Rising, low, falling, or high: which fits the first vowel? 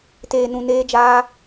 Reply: low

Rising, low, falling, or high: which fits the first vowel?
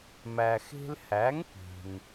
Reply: low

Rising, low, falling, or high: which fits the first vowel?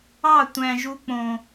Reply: falling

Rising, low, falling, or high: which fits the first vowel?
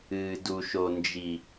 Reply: low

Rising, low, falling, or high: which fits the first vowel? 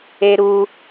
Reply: high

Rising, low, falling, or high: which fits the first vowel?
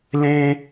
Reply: high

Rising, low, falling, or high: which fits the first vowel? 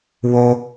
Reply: high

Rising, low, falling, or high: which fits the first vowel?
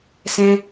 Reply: high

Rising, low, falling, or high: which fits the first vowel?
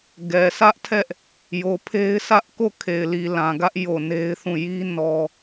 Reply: low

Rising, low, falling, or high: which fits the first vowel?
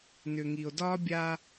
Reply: low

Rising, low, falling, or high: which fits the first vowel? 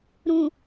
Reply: low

